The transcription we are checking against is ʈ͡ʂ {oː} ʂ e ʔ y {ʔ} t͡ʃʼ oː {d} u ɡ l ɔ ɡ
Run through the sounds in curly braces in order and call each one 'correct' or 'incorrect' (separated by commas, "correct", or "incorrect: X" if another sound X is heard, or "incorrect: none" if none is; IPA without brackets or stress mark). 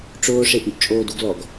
correct, correct, correct